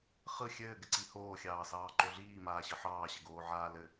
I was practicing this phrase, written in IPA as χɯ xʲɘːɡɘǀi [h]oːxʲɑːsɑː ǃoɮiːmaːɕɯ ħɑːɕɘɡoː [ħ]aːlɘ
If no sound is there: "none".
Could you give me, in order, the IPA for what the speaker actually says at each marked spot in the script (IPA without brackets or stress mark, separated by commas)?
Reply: h, ʕ